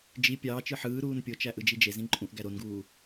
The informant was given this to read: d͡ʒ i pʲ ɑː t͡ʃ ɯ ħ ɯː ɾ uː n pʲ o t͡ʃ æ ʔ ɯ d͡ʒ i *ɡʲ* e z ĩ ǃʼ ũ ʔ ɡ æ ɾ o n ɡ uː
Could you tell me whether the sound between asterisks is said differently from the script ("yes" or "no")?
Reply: yes